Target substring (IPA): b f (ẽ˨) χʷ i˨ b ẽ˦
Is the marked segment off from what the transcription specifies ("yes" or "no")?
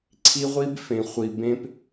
no